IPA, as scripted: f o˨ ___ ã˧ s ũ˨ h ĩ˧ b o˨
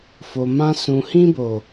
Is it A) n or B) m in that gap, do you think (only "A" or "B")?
B